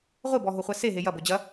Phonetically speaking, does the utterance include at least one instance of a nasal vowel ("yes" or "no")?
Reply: no